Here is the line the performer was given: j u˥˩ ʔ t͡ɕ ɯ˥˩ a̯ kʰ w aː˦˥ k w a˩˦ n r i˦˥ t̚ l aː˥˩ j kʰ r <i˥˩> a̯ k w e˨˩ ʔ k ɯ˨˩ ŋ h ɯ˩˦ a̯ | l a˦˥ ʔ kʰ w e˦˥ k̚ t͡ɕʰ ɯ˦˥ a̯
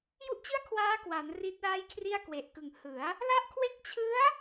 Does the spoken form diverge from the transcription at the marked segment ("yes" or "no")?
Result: no